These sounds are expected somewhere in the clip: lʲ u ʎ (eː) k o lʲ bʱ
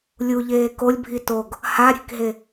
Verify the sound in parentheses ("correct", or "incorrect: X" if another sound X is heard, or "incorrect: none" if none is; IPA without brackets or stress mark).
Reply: correct